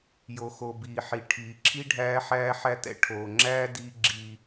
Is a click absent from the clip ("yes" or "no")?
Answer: no